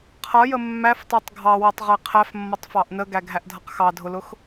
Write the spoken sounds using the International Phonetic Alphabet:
qʰ ʌ j ə mː æ f tˤ ə˞ tˤ ɡʱ ɑ w ʌ tˤ ʁ ɛ qʰ æ f mː ʌ tˤ f ɑ ʔ n ə ɡ æ ɡʱ æ ʔ dʱ ʌ q x ɑ dʱ ʊ l ʊ x

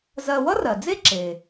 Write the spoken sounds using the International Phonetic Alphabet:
z ɜ˧ w ʌ˥ r ɜ˩ d͡z e˥ ǁ e˩

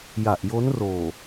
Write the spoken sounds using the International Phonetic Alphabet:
j a˨˩ ʔ j o˦˥ n r oː˨˩

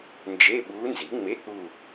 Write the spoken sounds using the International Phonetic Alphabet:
n d͡ʒ e˧˥˧ ɓ uː˧˥ n z i˩˥ ŋ͡m e˧˥˧ k͡p u˦˨

